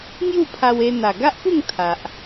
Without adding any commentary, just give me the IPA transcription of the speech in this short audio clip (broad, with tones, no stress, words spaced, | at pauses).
ŋju˥˧pʰa˧we˧ n̪a˨˩ɡa˦ʔpu˥˧ŋ t̪ʰa˨ʔ